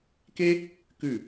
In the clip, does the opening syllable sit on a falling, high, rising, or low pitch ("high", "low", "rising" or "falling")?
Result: high